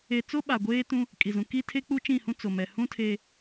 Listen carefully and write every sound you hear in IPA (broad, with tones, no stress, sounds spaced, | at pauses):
e˨ t͡s o˦ ɓ a˨ ɡʷ eː˦ t ũ˦ | kʼ i˨ z ũ˨ k i˦ tʰ e˦ k͡p u˦ t͡ʃ ĩ˦˨ h ũ˦ t͡s o˨ m ɛ˨ h ũ˦ tʰ e˦